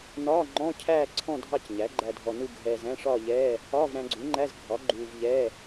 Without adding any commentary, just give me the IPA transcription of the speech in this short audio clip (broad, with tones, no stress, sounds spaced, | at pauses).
n ɒː˧˥˧ ŋ͡ǃ ɔ̃˧˥˧ cʰ æː˥˧ ǀʰ ɔ̃˥˧ dʱ ɑ˥˧ c ɲ æ˩˥ ɡ͡ǃ æ˧ dʱ ɔ˧ n u˥˧ ɡʱ ɛː˧ z æ̃˧˥˧ ʂ ɒː˥˧ ʎ ɛː˧˥˧ | ɒː˧˥˧ v ɾ æ̃˧ ɡ͡ǀ u˩˥ ŋ͡ǃ æ˧˥˧ z ɡʱ ɒ˩˥ ɡ͡ǃ uː˧ v ʎ ɛː˧˥˧